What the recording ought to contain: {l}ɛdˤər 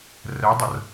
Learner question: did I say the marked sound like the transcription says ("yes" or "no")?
no